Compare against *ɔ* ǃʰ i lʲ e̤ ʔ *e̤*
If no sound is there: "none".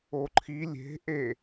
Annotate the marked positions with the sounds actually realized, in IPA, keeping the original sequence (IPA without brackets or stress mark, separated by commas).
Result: o, e